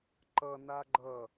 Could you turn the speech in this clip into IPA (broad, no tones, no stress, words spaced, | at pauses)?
ǃʌna ɡ͡ǃʌ